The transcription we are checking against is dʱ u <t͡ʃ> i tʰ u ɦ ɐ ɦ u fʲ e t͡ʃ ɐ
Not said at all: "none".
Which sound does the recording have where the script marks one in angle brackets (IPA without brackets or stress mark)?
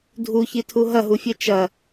ç